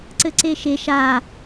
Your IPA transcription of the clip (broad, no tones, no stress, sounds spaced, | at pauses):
ǀ ɘ ǀ e ʃ e ʃ a